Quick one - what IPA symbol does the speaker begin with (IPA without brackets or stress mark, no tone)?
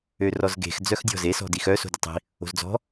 ø